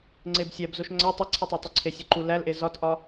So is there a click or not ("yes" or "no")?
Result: yes